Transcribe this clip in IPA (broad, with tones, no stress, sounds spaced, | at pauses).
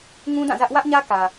ŋ ũ˦ d ã˦˨ z ä˦ ʔ w ä˦ ʔ ɲ ä˦ k ä˨